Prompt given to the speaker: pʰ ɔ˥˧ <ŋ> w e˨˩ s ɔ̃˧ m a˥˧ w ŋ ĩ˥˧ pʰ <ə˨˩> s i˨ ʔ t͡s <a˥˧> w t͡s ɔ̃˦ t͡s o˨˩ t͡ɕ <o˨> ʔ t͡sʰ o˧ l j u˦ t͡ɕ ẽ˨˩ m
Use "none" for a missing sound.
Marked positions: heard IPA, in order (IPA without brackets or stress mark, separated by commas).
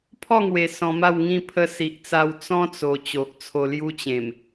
ŋ, ə˧, a˧, o˨